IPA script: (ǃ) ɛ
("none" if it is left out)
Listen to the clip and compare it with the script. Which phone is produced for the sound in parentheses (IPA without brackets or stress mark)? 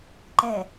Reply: ǃ